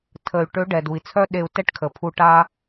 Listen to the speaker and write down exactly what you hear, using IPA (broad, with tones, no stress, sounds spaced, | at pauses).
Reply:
tʰ ə˩ y̯ ʈ ø˧˥ ɖ ɛ˩ d u˩ i̯ t͡sʰ œ˥ ɗ e˧ u̯ t ɛ˥ ʈ kʰ ə˩ pʰ u˧ ʈ a˥